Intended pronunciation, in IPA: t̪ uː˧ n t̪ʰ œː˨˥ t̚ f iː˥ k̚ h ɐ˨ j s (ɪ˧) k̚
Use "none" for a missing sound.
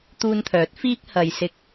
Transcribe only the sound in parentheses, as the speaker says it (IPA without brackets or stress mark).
ɪ˧